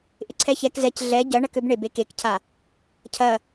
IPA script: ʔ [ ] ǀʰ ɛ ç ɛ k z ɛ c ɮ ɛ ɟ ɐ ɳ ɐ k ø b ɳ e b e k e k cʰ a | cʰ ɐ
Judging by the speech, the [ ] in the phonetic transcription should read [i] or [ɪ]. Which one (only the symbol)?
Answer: ɪ